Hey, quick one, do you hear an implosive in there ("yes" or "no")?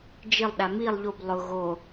yes